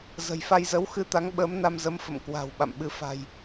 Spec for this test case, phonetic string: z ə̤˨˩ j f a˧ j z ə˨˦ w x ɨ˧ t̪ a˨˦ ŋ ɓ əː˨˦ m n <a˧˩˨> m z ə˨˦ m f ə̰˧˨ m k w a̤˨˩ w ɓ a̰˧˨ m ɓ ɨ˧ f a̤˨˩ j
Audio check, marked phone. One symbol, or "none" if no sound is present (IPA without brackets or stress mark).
a˧